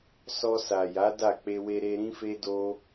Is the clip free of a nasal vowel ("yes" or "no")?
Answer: no